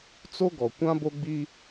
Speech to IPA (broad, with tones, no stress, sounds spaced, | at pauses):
t͡s o˦ ɡ ɔ˨ kʷ ã˦ b o˦ ɡ͡b i˦